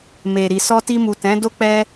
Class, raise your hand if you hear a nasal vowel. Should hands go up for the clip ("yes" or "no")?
yes